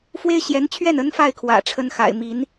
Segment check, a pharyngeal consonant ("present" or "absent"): absent